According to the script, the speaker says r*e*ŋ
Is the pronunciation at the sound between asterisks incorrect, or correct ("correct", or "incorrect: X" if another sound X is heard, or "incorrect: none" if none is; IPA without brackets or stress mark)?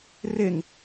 correct